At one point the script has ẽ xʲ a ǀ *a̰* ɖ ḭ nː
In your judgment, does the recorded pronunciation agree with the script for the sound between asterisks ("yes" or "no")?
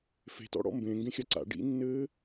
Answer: yes